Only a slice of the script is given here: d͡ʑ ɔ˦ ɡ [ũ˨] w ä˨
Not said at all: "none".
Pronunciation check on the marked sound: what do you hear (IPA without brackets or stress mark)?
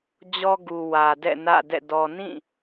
u˨